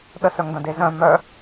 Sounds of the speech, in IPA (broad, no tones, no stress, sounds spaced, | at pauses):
ɗ ə s œ ŋ d ɐ̃ d e z œ̃ m œ